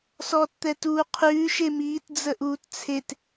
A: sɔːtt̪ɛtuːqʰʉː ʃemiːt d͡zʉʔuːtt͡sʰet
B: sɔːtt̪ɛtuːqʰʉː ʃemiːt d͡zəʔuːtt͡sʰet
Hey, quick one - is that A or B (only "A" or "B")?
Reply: B